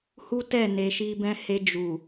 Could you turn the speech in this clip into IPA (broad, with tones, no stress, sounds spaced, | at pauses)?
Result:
h u˦ t ɛ˦˨ n e˧ ʃ i˦ b ɛ̃˦ h e˧ d͡ʒ u˨